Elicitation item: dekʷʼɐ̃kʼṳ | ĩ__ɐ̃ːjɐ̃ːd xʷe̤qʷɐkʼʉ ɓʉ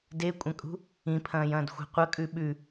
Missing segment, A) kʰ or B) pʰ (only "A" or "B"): B